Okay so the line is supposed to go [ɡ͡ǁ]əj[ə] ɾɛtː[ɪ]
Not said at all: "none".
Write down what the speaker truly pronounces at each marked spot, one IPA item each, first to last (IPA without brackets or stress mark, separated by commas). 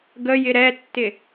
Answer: ɡ, ɪ, ɪ